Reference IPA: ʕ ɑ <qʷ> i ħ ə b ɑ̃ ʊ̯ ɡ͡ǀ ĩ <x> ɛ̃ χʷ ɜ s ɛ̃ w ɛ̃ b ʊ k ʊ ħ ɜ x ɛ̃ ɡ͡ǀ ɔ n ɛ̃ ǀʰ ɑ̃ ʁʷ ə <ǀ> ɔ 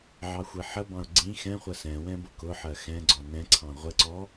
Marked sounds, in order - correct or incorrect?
incorrect, correct, correct

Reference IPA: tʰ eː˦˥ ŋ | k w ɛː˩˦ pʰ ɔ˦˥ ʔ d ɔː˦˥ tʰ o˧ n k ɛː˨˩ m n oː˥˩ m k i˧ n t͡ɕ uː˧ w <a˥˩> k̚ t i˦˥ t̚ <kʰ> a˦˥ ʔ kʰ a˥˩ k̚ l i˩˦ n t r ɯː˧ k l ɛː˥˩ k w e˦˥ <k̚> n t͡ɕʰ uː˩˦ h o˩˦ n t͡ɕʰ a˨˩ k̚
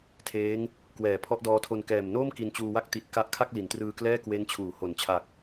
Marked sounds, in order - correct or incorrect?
correct, incorrect, incorrect

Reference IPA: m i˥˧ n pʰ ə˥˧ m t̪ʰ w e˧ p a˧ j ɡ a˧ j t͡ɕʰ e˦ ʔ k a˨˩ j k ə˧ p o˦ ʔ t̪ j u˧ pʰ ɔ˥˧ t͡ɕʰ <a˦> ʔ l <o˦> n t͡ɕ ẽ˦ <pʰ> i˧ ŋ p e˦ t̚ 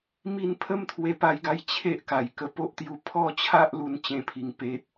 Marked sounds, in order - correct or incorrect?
correct, incorrect, correct

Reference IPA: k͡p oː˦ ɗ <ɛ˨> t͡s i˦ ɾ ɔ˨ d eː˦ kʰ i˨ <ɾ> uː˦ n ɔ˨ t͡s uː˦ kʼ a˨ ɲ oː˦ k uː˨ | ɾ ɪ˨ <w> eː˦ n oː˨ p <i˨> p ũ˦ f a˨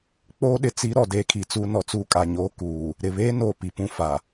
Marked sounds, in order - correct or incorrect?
incorrect, incorrect, incorrect, correct

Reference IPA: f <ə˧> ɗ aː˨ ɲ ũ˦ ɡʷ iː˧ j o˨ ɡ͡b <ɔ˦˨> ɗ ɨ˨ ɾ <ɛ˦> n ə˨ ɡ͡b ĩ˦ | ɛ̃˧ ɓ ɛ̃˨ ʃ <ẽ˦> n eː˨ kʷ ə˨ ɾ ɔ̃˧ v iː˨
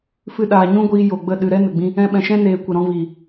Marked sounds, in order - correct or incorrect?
incorrect, incorrect, correct, incorrect

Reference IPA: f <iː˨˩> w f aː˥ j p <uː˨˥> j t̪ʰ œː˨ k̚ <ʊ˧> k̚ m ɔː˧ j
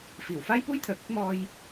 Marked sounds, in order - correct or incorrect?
correct, incorrect, incorrect

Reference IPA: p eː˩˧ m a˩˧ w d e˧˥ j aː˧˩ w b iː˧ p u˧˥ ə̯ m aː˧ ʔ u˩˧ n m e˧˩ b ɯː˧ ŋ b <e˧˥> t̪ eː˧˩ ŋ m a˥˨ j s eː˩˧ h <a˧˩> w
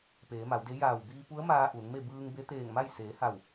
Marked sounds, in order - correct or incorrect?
correct, correct

